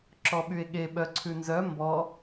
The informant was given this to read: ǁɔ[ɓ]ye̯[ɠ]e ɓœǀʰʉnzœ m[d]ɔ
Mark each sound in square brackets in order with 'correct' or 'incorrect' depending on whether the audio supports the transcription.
correct, correct, incorrect: b

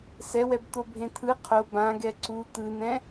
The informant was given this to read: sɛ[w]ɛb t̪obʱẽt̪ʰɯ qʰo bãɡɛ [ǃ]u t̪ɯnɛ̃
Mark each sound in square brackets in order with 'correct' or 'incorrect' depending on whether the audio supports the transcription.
correct, incorrect: ǀ

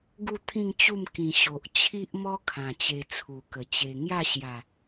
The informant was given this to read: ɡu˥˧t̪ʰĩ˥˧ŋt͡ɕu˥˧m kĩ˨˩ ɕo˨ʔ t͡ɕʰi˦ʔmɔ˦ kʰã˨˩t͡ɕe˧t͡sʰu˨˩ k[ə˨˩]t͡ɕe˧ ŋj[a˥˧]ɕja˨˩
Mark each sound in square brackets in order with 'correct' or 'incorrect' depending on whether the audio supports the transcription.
correct, correct

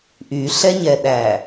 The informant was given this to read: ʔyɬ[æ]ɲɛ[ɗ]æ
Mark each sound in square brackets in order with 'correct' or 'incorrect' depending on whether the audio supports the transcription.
incorrect: ɛ, correct

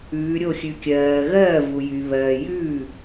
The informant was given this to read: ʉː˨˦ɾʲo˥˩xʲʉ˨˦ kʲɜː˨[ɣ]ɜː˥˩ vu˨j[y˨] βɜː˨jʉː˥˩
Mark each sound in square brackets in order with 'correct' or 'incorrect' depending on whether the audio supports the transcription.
correct, correct

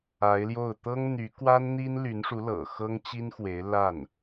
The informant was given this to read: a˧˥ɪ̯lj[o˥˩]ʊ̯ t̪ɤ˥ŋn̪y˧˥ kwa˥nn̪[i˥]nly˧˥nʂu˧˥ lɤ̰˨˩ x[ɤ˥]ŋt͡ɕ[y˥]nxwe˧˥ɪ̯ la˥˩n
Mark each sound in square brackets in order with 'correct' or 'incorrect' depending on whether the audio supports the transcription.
correct, correct, correct, incorrect: i˥

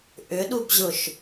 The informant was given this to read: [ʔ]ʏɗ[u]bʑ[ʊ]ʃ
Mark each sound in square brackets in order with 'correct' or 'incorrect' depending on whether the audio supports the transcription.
correct, correct, correct

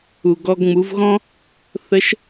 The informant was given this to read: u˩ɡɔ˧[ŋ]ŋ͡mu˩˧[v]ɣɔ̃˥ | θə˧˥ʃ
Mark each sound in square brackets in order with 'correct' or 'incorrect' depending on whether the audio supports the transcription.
incorrect: ɡ, correct

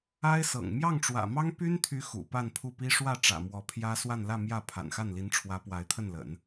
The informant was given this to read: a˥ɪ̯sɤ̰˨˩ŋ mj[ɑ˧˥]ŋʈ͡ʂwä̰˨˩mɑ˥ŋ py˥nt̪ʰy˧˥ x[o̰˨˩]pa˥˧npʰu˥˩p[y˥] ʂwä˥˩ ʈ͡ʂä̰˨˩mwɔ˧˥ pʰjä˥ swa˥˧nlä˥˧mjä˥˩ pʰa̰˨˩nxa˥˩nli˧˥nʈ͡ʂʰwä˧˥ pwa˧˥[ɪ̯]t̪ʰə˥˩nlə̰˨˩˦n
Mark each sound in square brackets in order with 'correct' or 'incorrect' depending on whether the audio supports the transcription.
incorrect: ɑ˥˩, incorrect: ṵ˨˩, incorrect: i˥, correct

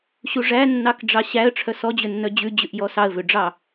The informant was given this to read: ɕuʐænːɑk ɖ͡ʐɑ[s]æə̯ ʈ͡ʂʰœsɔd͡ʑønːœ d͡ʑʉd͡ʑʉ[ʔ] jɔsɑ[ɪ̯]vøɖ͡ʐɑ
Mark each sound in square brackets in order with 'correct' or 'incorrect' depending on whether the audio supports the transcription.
incorrect: ɕ, correct, incorrect: ə̯

